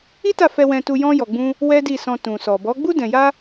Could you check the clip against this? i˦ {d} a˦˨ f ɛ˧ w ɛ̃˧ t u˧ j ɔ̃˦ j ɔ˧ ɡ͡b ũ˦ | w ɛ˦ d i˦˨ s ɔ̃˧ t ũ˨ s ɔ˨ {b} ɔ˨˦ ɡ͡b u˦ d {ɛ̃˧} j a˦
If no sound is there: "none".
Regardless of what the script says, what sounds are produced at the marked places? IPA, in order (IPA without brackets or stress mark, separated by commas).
t, b, ɛ̃˧